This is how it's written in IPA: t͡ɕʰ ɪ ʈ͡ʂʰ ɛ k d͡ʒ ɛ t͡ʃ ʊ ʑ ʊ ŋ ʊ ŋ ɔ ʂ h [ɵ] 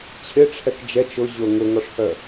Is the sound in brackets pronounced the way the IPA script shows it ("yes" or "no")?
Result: no